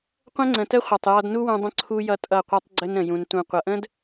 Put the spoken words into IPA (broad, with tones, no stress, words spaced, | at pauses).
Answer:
qʷə̃˦ŋ͡ǀə̃˨tə˦χʷʌ˨tˤ jɔ˧dnu˦wũ˧ dˤə̃˦ǀʰu˦ jʌ˧ tʼʌ˦˨qʷʌ˦tˤɡ͡ǀə˦n ɾə̃˧jũ˧n tũ˨qʷʌ˨ʔə̃˦d